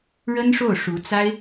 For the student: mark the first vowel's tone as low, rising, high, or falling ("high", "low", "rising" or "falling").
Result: high